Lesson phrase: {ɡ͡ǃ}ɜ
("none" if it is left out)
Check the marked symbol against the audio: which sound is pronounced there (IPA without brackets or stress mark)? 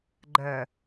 ɡ͡ǃ